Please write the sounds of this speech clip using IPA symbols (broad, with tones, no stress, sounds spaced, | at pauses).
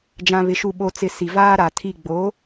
d͡ʒ ã˨ β ɪ˨ ʃ u˨ ɓ o˨ t͡s ɪ˨ s i˨ v aː˦ ɾ a˨ tʰ i˦˨ ɡ͡b o˨˦